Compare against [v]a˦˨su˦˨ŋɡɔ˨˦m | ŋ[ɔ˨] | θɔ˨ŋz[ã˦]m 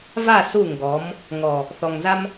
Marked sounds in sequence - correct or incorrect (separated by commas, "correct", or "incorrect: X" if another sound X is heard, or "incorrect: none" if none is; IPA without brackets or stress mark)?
correct, correct, incorrect: a˦